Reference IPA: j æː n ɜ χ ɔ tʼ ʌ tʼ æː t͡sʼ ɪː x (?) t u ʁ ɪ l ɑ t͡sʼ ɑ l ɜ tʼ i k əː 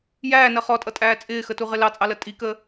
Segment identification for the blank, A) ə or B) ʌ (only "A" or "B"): A